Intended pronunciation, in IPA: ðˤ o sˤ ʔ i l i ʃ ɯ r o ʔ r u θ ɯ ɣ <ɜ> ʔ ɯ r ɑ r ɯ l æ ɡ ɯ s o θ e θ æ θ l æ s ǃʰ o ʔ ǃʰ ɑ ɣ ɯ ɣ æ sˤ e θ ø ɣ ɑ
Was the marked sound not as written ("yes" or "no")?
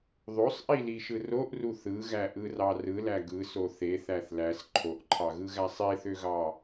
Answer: yes